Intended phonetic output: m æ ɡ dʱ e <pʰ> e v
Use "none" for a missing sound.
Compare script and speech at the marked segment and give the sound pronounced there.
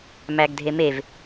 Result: m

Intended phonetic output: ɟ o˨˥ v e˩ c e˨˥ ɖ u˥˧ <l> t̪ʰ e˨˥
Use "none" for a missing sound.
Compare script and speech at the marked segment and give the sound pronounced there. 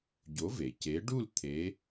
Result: l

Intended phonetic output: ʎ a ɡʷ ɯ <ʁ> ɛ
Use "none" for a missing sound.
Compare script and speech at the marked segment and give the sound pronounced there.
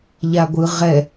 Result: ʁ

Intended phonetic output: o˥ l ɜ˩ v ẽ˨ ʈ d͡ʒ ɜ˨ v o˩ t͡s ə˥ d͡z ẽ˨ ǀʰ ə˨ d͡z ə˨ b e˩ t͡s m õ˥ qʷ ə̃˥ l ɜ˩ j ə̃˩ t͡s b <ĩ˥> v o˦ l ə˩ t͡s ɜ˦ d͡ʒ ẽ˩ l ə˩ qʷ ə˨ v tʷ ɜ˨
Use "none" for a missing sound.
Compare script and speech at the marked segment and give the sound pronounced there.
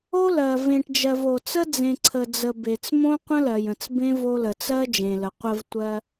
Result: ẽ˥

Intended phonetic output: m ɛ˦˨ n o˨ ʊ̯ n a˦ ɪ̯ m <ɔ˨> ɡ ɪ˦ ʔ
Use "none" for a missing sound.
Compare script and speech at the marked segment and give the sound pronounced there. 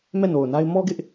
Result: ɔ˦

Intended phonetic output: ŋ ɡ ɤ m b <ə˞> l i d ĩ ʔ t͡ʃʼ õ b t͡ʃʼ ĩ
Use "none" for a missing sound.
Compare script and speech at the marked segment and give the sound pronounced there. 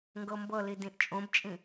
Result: ɤ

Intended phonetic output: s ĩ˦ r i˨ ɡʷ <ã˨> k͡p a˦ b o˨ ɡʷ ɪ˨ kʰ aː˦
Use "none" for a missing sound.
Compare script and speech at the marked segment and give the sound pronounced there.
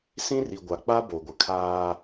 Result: a˨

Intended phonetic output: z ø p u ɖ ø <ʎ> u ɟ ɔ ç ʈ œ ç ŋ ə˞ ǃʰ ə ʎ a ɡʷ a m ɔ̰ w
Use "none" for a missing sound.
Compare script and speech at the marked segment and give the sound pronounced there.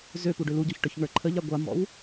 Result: l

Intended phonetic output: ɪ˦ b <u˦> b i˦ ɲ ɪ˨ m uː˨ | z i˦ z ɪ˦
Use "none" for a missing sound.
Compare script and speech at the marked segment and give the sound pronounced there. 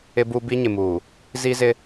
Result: u˦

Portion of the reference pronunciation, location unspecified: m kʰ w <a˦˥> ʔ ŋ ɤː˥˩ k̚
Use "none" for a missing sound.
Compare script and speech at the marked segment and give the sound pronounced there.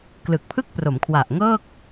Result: a˨˩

